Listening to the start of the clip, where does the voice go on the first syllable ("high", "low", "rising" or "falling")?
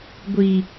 low